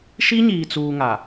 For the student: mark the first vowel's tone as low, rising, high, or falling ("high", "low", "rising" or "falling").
high